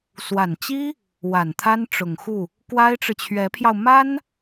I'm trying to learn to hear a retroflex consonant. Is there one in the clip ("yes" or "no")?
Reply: yes